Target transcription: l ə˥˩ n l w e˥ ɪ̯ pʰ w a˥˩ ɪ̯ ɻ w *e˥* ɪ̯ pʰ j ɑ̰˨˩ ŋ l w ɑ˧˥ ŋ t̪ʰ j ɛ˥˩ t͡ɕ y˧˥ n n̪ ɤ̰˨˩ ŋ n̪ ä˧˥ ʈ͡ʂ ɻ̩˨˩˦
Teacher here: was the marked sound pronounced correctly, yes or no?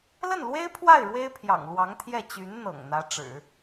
yes